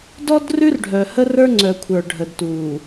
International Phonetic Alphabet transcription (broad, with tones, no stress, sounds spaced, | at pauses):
d ɔ˦ d r ʉ˦ r ɖʱ œː˨ h ə˦ r ə˞˦ ŋ͡ǀ œ˨ kʷʰ ə˞˨ ɖʱ ə˨ d t uː˨